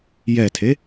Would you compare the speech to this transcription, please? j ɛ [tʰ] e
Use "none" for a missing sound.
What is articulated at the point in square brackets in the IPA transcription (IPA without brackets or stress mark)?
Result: tʰ